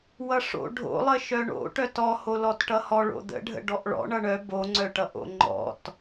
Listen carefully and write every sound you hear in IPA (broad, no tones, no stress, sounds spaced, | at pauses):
w ʌ ʂ o̰ ɖʱ o̰ lˠ ə ʃ œ ɳ o̰ ʈ œ t ɔ h o l ɔ t ʈ ʌ h ɔ ɭ o̰ d̪ ə̰ ɖʱ ə̰ ɖ ɔ ʔ ɭ ɔ̰ ɳ ʌ ɳ œ b o ŋ͡ǀ œ ʈ ʌ ʔ o̰ ŋ͡ǃ ɔ̰ t